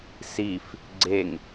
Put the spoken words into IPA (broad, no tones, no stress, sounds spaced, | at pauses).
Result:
s i f | ɡ͡ǀ e ŋ